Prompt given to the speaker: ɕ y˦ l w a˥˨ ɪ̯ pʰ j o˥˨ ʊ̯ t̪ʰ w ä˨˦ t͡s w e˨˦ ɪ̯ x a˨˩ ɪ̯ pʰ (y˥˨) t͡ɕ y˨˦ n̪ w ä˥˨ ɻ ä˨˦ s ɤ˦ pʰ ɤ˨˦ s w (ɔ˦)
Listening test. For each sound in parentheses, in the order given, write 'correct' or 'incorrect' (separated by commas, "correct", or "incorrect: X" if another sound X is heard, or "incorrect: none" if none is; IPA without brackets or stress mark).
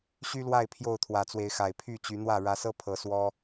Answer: correct, correct